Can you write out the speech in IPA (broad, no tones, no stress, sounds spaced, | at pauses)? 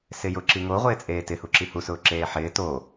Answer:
s ɪ j ʊ ǁ i ŋ o ʁʷ ɪː t͡sʼ eː t ɪ h u ǁ i h u s ʊː ǁ eː ħ ɪː t o